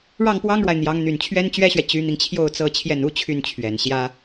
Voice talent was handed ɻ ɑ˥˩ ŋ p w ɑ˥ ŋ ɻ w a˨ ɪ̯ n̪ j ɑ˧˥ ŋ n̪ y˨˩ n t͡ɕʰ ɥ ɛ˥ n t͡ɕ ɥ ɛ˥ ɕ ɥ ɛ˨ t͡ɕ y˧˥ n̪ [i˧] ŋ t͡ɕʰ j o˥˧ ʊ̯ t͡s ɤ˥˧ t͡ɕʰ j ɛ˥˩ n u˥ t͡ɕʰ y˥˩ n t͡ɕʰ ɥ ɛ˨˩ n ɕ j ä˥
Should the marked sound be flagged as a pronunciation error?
no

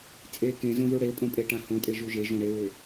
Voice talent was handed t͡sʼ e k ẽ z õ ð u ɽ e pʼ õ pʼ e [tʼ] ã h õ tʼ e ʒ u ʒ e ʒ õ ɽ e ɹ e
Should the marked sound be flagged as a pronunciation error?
yes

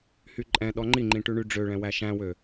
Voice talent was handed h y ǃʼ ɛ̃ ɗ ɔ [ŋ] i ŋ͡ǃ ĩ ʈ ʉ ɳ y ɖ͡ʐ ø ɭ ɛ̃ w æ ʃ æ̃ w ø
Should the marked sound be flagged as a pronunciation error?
yes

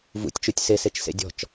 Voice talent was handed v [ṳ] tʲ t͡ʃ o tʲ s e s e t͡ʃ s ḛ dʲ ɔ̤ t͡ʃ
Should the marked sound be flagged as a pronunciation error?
yes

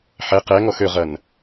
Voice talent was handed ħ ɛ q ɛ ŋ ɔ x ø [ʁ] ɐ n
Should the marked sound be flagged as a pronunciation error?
no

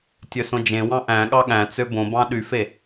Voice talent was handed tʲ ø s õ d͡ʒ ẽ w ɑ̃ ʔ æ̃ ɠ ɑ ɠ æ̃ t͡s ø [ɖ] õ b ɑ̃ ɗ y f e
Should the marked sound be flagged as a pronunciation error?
yes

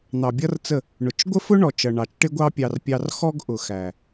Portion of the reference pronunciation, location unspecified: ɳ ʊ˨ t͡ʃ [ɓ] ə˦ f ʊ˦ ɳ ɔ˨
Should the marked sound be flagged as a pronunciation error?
yes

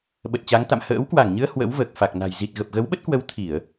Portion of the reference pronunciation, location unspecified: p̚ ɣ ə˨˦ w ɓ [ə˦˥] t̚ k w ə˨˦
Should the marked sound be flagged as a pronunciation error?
no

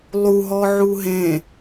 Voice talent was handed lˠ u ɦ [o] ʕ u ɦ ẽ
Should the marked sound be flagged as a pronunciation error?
yes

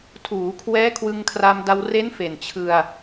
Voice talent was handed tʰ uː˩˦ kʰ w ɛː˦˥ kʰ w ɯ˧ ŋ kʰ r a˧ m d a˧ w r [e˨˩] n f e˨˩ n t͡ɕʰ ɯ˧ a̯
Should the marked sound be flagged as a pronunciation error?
yes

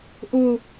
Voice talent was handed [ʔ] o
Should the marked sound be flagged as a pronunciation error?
no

